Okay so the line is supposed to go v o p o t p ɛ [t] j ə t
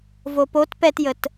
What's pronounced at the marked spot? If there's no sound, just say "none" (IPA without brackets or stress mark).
t